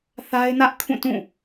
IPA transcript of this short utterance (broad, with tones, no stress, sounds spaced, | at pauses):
θ a˦ ɪ̯ n ä˦ ʔ kʰ ũ˦˨ t ũ˦˨